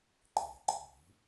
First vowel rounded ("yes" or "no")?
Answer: no